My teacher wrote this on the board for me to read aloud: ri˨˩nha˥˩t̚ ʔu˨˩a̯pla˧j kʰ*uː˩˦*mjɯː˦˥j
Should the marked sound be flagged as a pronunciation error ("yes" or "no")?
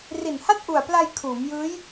no